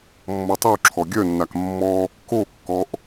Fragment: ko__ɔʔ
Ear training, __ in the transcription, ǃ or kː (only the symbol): kː